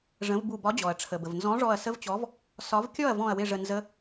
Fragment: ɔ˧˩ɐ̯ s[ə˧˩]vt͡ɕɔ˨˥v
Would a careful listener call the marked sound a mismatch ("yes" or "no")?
yes